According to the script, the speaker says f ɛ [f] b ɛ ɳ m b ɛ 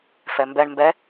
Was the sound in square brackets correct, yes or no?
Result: no